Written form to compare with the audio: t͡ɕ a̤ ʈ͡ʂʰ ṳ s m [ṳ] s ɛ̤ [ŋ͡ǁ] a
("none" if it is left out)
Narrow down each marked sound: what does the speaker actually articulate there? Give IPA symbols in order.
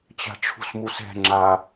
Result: u, ŋ͡ǁ

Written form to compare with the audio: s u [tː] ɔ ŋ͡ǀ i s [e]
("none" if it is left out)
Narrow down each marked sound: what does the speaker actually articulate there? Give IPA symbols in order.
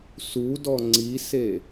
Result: d, e

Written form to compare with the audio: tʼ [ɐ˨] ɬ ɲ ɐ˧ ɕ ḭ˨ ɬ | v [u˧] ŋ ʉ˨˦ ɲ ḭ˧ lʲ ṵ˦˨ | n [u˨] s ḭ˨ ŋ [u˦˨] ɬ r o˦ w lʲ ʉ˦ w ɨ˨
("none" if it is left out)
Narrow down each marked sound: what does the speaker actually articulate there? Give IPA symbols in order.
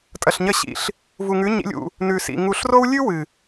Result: ɐ˨, u˨, ʉ˨, u˨

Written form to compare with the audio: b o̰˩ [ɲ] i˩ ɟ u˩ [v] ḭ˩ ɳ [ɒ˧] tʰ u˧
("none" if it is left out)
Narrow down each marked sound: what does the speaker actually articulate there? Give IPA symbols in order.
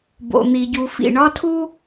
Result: n̪, f, ɒ˧

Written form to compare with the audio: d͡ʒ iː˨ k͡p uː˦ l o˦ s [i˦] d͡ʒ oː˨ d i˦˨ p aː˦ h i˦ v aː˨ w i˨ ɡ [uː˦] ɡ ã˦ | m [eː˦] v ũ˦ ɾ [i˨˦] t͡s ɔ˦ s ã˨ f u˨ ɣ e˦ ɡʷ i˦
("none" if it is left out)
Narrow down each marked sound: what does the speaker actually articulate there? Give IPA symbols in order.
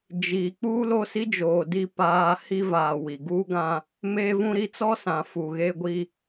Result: i˦, uː˦, eː˦, i˦

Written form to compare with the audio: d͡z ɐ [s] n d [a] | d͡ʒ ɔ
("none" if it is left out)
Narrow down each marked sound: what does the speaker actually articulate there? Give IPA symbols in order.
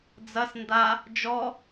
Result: s, a

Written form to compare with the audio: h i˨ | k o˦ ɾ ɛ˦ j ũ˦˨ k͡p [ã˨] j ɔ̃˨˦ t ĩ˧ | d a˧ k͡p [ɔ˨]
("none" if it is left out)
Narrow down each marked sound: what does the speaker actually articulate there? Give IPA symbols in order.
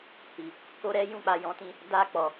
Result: a˨, ɔ˨

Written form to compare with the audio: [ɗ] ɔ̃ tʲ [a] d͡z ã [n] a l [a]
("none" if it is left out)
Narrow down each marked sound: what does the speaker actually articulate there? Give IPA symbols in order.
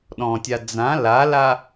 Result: ɗ, a, l, a

